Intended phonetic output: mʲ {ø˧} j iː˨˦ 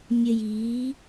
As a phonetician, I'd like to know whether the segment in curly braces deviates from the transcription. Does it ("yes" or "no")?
yes